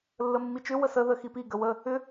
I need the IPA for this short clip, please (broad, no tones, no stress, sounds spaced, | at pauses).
lː ə mː i t͡ʃ ʏ w ə s ə ð ə x i p i ɡ ə w ə | ʏ